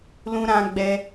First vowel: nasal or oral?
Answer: nasal